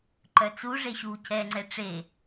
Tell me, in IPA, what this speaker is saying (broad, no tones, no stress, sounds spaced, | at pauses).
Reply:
ǃ œ t͡s u ʐ e ɕ uː c ɛ ŋ͡ǀ ɛ ʈ͡ʂ e